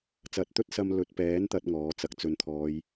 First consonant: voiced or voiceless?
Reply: voiceless